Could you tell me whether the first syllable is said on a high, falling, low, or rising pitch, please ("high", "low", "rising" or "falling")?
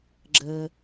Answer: low